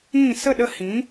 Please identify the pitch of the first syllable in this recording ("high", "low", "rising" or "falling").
falling